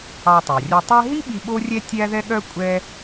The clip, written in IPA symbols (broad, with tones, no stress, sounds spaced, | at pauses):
ɑ˧ tˤ æ˩ rʲ œ˧ tˤ ɛ˥ ɦ i˥ ɓ i˧ ɓ o˥ rʲ ɛ˥ tʲ æ˥ ð ɛ˥ ɠ œ˥ kʷʼ ɛ˥